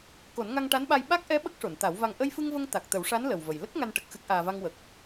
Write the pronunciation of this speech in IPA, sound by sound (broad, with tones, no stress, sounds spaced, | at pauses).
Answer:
k o˨˩˦ n ŋ a˧ ŋ ʈ a˧˥ n ɓ a˧ j ɓ a˦˥ k̚ ʔ ɛ˧˥ ɓ ə˦˥ k̚ ʂ o˨˩˨ n t̪ a˨˩˦ w v a˨˩ ŋ ʔ ə˧ j f ɨ˧ ŋ v ə˧ ŋ t̪ a˨˩ k̚ t̪ ə˨˩˦ w ʂ a˧˥ n l ə˨˩ w v ə˨˩ j l ə˦˥ k̚ ŋ a˧ n ʈ ə˨˩ k̚ x ɨ˦˥ k̚ ʔ aː˧ v a˧ ŋ w ə˨˩ k̚